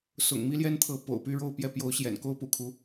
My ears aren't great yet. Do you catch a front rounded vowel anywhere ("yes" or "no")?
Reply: yes